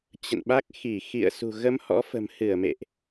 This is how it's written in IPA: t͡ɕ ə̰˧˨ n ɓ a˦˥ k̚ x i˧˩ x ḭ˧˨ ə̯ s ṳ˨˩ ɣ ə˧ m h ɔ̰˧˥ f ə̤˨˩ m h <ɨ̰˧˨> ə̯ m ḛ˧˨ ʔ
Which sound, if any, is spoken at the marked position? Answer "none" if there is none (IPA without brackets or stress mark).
ɨ˧˩